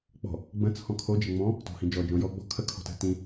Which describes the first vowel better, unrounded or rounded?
rounded